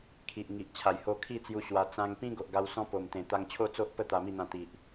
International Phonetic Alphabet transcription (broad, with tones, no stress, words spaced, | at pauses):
kʰi˨ʔŋi˨ʔ t͡ɕʰa˨˩jho˧kʰi˥˧t͡sju˧ ɕwa˧ t͡sã˧ŋpĩ˦ ɡo˨ʔɡa˧w sɔ̃˦po˨˩mt̪ẽ˨˩ t̪a˧ŋt͡ɕʰo˥˧t͡so˦ʔ pə˥˧ t̪a˧mi˥˧n̪ã˧ t̪i˨ʔ